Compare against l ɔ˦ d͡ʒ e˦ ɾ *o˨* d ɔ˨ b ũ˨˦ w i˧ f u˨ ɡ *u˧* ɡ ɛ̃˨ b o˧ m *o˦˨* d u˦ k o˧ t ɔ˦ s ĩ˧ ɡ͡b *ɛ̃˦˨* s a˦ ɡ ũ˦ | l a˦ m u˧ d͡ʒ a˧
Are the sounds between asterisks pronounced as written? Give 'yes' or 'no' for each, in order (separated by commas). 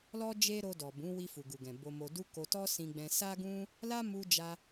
no, no, no, no